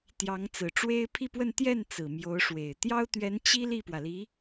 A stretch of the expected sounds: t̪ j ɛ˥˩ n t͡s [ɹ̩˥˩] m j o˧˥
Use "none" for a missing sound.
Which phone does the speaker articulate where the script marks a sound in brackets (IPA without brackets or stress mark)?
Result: ɹ̩˨˩